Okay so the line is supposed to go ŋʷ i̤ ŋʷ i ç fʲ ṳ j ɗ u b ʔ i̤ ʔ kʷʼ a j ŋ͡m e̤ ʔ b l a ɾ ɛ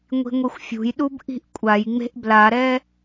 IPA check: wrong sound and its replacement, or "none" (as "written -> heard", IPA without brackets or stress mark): ç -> xʷ